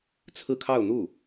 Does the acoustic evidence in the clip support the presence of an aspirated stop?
yes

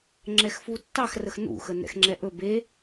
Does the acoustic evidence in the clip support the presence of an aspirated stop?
no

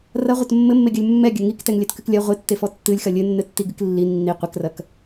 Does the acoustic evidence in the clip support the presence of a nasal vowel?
no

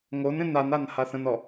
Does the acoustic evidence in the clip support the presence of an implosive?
no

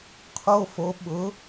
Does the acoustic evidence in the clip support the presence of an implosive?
yes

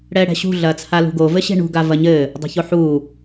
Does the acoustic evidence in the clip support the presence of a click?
no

